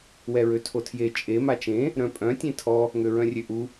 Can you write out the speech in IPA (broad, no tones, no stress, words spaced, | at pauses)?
wɛɹøtʰotʰje t͡ʃʼe mat͡ʃẽ | ɾœ̃pʼœ̃ tʲẽtʰɔ | ŋøɹœ̃rʲøʔu